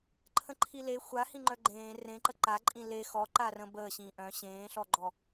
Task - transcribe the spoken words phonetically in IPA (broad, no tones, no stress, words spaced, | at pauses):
ǃʰə̃ǃʰile xʷahĩŋ͡ǃœ ɡ͡ǃẽː rẽǃə ǃaǃʼĩ le xɔǃa rə̃bəːɕĩː ʔœ̃ ɕẽːɬɔɡ͡ǃɔ